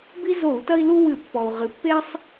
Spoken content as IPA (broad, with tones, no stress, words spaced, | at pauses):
bi˦zo˧˩˧u̯tɐ˦i̯lu˦ wɨ˧˩˧pːɔ˩u̯ ʁɨ˩˧pːe˦sˤ